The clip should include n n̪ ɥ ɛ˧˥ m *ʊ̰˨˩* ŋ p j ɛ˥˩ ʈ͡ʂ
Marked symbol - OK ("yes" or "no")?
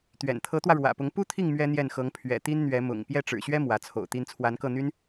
yes